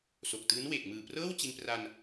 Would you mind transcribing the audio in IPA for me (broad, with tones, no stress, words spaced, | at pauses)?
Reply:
so˨˩k̚tɯː˦˥n we˨˩k̚mɯː˨˩prɤː˥˩wt͡ɕi˧n pra˧n